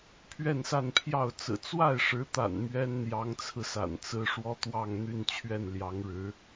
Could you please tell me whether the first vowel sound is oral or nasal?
oral